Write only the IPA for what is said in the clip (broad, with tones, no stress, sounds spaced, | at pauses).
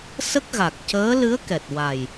s ə˦˥ k̚ ɣ a˨˩ k̚ c əː˧˥ l ɨ˧˥ ə̯ k ɛ˨˩ t̚ w a˨˩ j